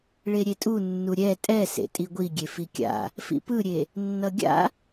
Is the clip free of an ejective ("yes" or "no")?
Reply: no